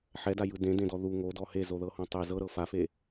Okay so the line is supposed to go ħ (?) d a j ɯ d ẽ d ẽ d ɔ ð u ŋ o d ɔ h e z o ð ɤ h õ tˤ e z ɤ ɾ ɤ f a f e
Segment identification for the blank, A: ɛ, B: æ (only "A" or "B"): A